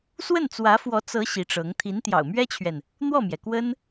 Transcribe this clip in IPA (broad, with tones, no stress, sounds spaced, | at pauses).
s w ə˥˩ n t͡s w ä˧˥ f w ɔ˧˥ t͡s ɤ˧˥ ɕ i˧˥ ʈ͡ʂ ɤ˧˥ ŋ t̪ʰ i˧˥ n t̪ j ɑ̰˨˩ ʊ̯ m ɥ ɛ˥ t͡ɕʰ ɥ ɛ˨ n | n̪ w ɔ˥˩ m j ɛ˩ k w ə˥ n